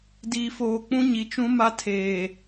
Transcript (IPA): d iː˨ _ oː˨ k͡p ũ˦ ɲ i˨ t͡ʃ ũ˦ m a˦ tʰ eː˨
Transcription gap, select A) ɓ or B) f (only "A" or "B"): B